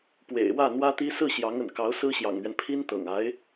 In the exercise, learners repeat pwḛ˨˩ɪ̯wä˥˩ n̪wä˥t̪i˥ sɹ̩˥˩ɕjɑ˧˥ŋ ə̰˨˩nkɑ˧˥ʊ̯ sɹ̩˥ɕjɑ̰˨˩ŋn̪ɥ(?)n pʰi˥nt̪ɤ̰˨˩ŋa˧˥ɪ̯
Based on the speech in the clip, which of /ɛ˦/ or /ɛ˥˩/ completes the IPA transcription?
ɛ˦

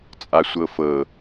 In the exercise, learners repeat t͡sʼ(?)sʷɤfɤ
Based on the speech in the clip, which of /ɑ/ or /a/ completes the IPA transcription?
a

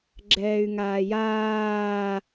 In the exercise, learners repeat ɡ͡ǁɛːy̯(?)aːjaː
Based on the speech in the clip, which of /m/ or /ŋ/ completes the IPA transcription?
ŋ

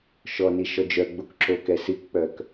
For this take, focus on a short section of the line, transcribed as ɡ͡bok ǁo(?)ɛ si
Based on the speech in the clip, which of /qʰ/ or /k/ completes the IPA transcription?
k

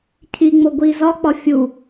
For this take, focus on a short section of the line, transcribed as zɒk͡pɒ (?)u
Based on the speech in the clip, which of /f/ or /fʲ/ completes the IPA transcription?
fʲ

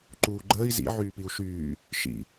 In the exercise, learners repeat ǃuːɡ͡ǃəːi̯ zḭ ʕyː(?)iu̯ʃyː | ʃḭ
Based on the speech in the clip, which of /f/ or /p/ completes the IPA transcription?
p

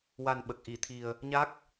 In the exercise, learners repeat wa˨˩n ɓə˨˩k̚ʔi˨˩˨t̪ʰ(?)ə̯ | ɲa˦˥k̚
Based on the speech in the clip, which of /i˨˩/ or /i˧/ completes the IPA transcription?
i˨˩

